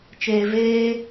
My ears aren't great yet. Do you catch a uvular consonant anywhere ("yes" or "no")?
no